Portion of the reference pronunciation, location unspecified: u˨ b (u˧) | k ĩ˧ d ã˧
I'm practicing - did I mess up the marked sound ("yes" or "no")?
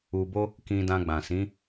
yes